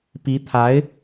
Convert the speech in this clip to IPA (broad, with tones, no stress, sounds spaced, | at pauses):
p i˧˥ t̪ʰ a˧˥ ɪ̯